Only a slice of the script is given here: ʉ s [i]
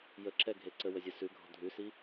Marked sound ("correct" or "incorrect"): correct